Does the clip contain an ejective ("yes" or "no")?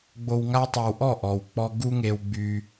no